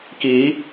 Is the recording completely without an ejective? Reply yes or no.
yes